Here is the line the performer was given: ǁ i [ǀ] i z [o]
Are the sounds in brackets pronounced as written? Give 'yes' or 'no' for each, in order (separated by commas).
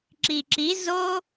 no, yes